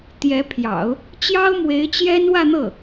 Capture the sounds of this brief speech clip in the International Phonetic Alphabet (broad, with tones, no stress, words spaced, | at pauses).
t̪jɛ˧˥pʰjɑ̰˨˩˦ʊ̯ | t͡ɕjɑ˥ʊ̯mwe˧˥ɪ̯t͡ɕjɛ˥n wä˥˧n̪ɤ˥˩